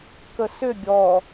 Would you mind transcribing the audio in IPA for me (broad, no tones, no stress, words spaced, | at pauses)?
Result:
kəsʏ ɡʲɔ